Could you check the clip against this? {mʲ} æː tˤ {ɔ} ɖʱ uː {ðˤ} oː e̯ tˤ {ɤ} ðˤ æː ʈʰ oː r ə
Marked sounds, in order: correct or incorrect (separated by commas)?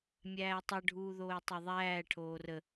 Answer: correct, incorrect, incorrect, correct